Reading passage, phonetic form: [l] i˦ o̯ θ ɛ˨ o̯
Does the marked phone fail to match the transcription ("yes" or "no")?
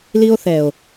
no